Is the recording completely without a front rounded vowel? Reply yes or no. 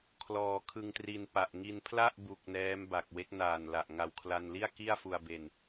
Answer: yes